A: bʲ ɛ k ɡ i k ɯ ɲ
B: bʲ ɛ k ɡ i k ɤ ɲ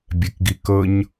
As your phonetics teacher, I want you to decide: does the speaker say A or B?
B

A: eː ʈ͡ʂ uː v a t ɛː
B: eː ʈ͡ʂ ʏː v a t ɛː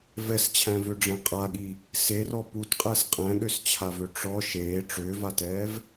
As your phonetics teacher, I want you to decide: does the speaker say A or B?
B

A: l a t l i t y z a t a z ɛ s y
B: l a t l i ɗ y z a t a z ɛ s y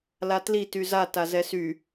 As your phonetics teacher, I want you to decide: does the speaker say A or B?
A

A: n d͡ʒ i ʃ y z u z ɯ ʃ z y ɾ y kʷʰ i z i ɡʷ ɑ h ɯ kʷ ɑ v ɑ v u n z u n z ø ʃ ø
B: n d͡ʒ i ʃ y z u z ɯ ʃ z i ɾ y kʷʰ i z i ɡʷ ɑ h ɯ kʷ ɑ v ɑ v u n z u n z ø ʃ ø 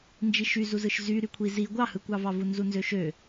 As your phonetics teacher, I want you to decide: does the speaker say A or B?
A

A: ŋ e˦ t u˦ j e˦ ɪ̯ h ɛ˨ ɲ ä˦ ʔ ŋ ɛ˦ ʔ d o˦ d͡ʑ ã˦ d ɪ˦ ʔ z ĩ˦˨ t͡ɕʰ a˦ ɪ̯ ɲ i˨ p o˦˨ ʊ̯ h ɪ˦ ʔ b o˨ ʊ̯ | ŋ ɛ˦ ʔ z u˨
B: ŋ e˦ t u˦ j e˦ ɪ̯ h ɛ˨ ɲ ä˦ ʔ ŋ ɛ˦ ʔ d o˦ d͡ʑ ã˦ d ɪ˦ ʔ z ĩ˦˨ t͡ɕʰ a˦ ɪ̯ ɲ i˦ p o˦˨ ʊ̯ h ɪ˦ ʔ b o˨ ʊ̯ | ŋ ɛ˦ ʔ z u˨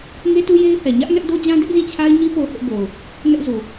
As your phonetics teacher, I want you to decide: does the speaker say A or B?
B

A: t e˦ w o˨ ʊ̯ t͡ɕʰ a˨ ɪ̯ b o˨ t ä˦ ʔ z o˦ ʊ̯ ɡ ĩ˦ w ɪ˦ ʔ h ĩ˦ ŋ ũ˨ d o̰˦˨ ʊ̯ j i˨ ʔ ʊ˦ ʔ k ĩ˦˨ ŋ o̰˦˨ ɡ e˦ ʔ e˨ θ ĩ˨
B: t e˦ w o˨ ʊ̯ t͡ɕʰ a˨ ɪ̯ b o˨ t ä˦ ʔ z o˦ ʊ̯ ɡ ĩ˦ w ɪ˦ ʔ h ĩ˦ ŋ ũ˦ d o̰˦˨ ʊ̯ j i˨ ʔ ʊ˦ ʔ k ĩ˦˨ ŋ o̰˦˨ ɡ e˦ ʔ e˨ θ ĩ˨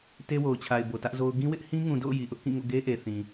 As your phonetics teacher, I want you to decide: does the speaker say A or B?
A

